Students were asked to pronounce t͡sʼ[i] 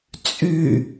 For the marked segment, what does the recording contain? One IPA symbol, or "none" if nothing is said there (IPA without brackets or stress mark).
y